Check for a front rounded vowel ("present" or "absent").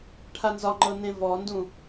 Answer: absent